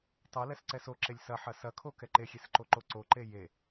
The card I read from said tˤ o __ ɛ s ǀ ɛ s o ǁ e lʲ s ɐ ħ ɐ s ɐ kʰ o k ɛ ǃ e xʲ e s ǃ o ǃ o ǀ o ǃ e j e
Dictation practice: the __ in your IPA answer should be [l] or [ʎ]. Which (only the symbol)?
l